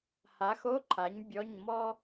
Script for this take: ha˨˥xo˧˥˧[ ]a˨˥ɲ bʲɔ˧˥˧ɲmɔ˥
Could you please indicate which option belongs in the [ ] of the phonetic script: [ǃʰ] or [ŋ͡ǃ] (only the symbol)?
ǃʰ